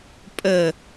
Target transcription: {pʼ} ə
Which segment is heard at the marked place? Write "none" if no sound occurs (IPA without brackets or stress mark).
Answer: pʼ